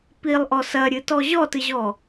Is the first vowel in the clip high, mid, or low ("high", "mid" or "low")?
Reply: high